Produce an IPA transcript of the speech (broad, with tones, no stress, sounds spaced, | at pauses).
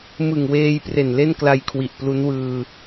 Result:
m ɯ˨˩ ŋ w eː˧ j p r e˨˩ n l e˥˩ n k l a˧ j kʰ w i˨˩ ʔ p l u˦˥ n w ɯː˧